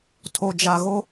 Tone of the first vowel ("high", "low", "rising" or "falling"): low